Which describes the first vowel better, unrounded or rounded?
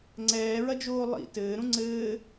unrounded